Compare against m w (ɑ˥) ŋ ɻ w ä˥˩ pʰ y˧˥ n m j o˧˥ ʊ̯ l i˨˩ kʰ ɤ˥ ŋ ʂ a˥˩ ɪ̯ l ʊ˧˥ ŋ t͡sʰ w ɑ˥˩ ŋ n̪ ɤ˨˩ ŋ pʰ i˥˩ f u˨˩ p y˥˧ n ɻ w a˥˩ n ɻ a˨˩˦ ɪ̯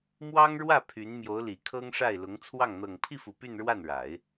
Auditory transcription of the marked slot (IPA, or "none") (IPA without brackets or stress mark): ɑ˥